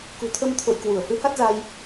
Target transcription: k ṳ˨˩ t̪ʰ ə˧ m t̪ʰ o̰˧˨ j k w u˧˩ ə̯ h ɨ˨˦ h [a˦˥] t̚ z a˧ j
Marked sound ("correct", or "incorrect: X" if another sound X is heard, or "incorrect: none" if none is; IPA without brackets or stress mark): correct